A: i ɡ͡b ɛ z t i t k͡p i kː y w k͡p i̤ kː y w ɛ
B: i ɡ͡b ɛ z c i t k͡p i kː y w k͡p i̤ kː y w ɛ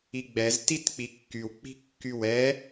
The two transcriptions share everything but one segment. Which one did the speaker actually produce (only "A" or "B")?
A